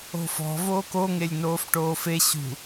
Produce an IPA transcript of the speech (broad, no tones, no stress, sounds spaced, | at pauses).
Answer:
o̤ f ɔ̤ v oː k o ŋ e lʲ n oː f ʈ oː f e ɕ ṳ